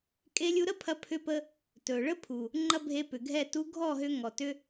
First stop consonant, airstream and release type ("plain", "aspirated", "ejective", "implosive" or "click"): ejective